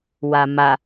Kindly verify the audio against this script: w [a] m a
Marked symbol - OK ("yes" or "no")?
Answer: yes